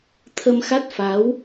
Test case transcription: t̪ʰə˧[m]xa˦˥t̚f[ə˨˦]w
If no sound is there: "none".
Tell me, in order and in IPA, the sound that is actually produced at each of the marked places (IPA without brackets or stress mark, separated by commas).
m, a˨˦